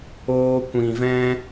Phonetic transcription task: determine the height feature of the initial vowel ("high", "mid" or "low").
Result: mid